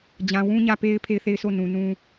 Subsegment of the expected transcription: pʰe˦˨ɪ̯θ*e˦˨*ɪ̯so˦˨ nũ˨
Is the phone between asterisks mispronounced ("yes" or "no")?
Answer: no